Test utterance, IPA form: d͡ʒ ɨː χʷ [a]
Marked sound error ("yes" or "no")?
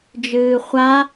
no